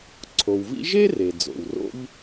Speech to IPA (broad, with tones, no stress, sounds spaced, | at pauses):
ǀʰ o˩ w v ḭ˥ ʒ e˥ r e˩ d͡z o̰˩ w r o̰˥ ʎ